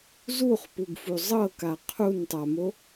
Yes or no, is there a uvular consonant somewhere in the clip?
yes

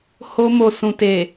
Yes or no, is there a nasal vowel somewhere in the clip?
yes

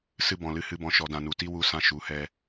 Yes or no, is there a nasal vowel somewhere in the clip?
yes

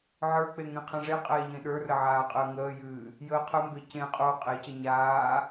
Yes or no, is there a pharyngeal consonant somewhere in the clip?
yes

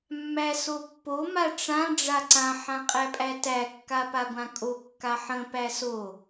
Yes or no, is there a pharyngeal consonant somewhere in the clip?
yes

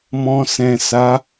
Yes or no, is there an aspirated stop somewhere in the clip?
no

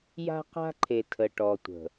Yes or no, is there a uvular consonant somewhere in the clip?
yes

